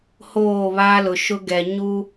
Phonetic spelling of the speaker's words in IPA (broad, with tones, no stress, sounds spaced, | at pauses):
h oː˦˨ β aː˦ l ʊ˨ ʃ ʊ˦ ɡ ɛ˨ ɲ u˦